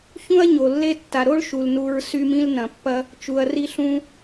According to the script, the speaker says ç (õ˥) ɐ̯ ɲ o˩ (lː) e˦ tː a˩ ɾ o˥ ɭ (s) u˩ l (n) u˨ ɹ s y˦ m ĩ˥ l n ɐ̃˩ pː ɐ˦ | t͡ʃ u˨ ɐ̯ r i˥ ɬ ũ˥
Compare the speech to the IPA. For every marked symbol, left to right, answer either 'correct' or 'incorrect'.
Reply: incorrect, correct, incorrect, correct

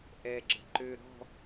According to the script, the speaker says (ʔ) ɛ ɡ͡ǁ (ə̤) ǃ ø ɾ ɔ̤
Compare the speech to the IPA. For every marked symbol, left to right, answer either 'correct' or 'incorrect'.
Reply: correct, correct

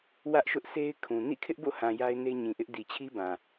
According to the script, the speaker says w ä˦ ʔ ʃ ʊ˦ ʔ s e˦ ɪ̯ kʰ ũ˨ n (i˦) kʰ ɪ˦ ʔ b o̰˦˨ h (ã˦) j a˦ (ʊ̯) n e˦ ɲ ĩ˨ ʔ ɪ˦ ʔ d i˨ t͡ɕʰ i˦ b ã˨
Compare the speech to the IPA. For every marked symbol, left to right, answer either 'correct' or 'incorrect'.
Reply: incorrect, incorrect, incorrect

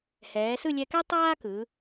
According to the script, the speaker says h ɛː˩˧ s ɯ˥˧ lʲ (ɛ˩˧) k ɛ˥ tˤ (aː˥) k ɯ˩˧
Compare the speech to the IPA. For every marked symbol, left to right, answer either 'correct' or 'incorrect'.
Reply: incorrect, correct

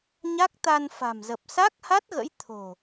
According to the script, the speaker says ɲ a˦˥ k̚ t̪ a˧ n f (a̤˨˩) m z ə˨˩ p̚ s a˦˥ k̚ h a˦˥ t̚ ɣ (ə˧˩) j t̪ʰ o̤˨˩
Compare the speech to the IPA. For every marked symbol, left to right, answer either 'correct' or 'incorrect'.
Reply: correct, incorrect

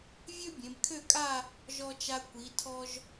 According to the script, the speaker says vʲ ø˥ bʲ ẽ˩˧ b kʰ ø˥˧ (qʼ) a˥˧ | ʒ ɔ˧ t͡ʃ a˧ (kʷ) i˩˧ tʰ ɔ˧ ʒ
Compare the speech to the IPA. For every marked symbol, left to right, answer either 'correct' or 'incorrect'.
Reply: incorrect, correct

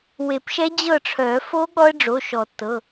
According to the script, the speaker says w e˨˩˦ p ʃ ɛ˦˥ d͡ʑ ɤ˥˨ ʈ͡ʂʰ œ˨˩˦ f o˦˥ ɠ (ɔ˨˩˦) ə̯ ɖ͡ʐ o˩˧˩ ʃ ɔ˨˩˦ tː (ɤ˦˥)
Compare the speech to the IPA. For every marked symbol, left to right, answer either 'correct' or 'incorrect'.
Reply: incorrect, incorrect

